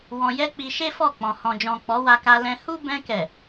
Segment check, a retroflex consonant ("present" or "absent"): absent